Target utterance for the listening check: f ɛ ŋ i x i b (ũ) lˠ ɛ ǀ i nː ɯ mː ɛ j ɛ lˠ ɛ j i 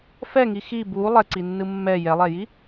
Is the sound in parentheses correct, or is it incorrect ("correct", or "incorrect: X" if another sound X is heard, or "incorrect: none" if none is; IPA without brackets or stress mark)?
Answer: incorrect: u